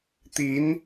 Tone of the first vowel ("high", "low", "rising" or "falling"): rising